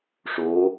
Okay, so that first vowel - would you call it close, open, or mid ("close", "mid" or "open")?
mid